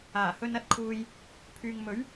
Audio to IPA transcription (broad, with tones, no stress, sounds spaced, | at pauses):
aː˨˩ h ɵ˧ n ɐ˧ t̚ kʰ uː˧ j | pʰ yː˨ ŋ m ɵ˨˥ ɥ